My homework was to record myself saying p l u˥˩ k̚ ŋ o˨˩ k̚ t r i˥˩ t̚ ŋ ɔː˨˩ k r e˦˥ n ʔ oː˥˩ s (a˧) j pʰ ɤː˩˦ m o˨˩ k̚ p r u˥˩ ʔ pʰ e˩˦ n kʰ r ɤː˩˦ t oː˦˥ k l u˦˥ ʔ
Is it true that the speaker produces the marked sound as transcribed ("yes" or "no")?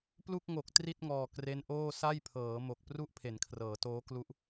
no